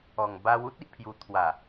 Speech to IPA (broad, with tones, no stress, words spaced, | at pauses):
ɔ˨˩ŋ ba˧w u˦t̚i˨ʔpʰju˨˩ t̪ʰwa˨˩